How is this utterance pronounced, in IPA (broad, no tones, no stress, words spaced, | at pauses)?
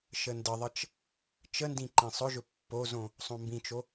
ʃəndəðˤət͡ʃ | t͡ʃəndĩ ǃĩsˤɵʒɵ pːozõ | sˤõmbĩt͡ʃo